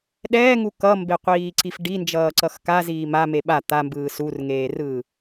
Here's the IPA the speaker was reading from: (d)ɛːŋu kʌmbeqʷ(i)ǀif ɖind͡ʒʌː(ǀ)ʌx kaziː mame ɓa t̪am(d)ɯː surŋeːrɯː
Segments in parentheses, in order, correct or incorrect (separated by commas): incorrect, incorrect, correct, incorrect